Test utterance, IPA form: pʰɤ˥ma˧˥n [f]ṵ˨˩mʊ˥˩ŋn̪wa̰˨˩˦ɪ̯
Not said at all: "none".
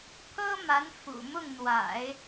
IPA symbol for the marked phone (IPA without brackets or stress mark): f